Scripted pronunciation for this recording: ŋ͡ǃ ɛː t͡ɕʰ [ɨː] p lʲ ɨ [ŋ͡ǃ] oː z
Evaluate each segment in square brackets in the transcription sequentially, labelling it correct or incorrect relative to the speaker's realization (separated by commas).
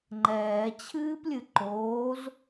correct, incorrect